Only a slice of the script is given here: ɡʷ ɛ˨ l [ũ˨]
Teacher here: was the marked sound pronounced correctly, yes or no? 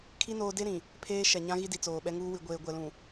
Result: yes